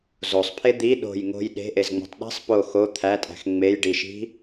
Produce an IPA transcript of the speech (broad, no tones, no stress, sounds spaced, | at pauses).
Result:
z o sˤ pʰ e d̪ i ɗ o̤ j ŋ o̤ j ɗ e̤ ʔ e z ŋ͡m o̤ tˤ ɗ i̤ sˤ p o x o t̪ʰ æ tʼ æ̤ x ŋ͡m e j ɖ i ʃ i̤